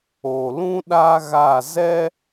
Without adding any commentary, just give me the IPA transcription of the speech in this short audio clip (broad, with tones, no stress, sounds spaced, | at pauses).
o˨ l ũ˦ ɗ a˦ ɣ a˦˨ z ɛ˦